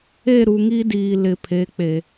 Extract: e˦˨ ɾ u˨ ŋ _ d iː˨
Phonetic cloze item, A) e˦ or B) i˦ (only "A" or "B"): B